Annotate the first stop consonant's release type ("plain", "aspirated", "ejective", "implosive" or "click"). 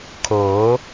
aspirated